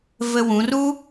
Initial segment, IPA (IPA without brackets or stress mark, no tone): v